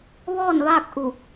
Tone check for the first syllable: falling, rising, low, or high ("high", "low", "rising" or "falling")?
falling